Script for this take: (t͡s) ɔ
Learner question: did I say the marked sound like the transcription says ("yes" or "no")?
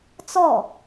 yes